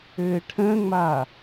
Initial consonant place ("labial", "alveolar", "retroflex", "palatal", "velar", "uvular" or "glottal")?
retroflex